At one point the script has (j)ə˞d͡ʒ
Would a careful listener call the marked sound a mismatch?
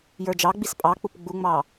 no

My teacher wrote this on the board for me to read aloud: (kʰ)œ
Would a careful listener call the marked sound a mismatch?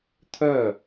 yes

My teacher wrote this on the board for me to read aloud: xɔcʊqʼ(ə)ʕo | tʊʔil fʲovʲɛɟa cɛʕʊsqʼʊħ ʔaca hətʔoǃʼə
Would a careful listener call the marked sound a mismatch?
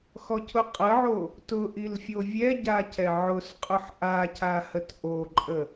no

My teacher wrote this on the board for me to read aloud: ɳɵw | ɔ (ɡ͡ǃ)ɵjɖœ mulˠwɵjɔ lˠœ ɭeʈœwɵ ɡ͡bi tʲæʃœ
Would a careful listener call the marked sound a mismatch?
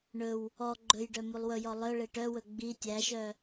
no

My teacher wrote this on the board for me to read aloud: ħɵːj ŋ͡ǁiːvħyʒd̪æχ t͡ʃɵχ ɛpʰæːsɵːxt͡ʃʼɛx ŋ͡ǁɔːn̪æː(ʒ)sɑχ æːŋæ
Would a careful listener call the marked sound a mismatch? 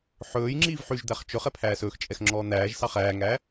no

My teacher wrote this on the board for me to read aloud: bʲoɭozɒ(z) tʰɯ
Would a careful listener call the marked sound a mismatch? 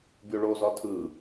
yes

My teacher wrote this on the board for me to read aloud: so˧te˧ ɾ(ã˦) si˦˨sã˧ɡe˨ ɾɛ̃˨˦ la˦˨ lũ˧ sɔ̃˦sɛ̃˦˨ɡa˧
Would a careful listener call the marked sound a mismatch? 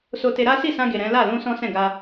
yes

